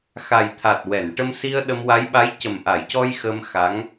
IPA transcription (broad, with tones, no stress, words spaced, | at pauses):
xa˨˩jt̪ʰa˨˩t̚ wɛ˨˩˨n ʈə˧msi˧ə̯ ɗə˧mwa˧˥j ɓa˧˥jcə˨˩m ʔa˨˩˨jcɔ˧j xəː˧m xa˧˥ŋ